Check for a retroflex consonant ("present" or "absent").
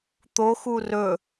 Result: absent